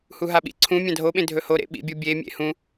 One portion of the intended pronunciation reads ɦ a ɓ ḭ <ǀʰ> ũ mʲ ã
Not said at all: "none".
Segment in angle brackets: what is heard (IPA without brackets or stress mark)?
ǀʰ